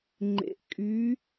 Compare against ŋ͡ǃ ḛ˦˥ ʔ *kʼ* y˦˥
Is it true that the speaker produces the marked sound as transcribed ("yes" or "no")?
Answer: yes